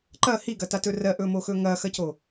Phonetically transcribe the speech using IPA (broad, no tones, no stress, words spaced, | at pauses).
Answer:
ǃɐ hiɡɐtatɵ rɜʔɵmoxɵ ŋɐxɐco